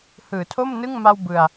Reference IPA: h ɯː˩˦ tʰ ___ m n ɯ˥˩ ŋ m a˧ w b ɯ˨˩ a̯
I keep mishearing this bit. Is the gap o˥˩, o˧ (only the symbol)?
o˥˩